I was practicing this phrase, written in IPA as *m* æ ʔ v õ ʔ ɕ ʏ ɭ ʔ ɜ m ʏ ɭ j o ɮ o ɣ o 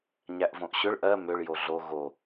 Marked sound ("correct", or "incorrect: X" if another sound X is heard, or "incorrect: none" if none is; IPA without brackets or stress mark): incorrect: ɲ